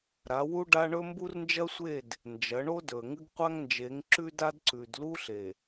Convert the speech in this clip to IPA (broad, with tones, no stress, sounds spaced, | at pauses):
ɾ a˨˦ w u˦ ɖ a˦ ɳ ɵ˦ m b u˦ r n d͡ʒ ɐ˦ sʷ e˦˨ d | n d͡ʒ ɐ˨˦ ɳ o˦ d ɵ˨ ə̯ ŋ ɨ˦ ɡ qʷ a˦ ŋ n d͡ʒ e˨˦ ŋ ǁ ʉ˦ d a˦ d ǀ ʉ˨ d l u˦ ɬ e˨